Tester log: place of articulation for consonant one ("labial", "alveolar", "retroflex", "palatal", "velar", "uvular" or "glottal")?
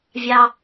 labial